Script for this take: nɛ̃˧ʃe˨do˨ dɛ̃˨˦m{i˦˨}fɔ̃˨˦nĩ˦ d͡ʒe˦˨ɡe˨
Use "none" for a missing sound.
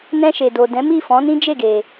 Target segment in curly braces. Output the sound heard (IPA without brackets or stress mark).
i˦˨